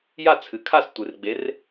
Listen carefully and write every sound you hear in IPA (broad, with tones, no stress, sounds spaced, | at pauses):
j a˥˩ t͡sʰ ɨ˩˧ kʰ a˥˩ s tʷ ɨ˩˧ r ɡ͡b e˨˥ r